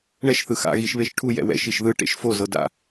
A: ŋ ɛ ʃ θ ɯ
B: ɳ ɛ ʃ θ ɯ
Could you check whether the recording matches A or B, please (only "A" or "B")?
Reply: B